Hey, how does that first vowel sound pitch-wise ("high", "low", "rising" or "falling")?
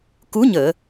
rising